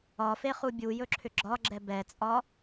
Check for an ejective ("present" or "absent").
present